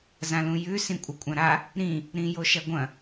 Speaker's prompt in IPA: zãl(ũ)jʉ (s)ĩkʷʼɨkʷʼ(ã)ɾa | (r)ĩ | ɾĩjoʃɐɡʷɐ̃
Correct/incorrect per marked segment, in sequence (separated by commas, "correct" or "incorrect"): correct, correct, correct, incorrect